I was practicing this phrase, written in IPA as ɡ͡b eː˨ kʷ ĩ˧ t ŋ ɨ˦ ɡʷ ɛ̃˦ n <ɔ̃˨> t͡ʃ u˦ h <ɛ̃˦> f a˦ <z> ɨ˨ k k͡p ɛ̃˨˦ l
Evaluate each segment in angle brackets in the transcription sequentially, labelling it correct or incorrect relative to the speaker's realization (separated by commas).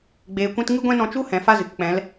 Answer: incorrect, incorrect, correct